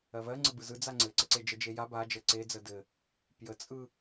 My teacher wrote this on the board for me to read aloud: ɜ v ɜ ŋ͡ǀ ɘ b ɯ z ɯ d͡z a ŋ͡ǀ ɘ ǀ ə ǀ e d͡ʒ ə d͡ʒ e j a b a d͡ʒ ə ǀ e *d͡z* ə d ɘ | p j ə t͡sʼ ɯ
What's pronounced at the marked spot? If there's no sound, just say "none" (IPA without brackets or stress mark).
d͡z